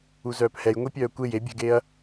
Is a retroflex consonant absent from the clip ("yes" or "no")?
yes